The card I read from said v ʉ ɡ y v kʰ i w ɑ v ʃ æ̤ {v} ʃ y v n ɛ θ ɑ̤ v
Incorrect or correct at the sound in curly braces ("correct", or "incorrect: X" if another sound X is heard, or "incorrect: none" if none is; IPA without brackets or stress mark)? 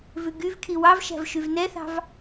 correct